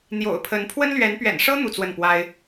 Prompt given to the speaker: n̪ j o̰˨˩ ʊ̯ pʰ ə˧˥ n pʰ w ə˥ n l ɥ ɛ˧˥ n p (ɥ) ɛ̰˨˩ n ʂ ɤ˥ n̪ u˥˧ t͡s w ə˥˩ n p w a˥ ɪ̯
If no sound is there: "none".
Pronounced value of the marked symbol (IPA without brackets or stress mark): ɥ